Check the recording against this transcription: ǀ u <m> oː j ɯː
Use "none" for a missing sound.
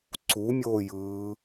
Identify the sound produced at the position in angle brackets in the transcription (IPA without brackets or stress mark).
mʲ